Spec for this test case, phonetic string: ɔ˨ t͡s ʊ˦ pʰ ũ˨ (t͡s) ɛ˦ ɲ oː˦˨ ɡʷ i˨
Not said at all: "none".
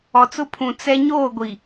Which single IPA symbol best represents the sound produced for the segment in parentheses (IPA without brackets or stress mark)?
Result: t͡s